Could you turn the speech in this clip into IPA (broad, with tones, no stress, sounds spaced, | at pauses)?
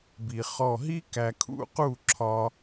b i˧ χ ɔ˦˨ ɦ i˦ k æ˧ kʰ ṵ˦ q u˦˨ ǁʰ ɒ˧